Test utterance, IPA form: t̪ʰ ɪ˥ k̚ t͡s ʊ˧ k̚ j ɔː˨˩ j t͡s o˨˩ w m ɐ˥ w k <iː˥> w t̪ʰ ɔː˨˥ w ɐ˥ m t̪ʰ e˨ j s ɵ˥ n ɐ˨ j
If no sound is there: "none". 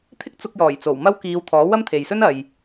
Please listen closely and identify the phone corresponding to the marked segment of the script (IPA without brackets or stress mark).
iː˨˧